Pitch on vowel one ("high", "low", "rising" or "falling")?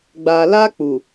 low